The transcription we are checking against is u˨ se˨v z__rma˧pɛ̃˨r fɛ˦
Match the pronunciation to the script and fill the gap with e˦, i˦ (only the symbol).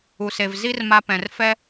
i˦